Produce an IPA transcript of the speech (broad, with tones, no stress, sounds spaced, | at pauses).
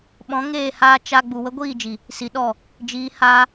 ɓ ɔ̃˨˦ ŋ eː˦˨ h aː˧ t͡ʃ a˦ ɡ͡b u˨ w ə˧ ɡʷ iː˦˨ d͡ʒ i˨ | s i˨ ɗ ɔ˦˨ | d͡ʒ iː˨˦ h aː˧